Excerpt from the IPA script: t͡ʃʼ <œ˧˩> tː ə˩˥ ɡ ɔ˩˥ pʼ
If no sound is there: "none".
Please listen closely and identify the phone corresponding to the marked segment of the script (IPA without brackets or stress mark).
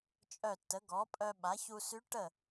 œ˧˩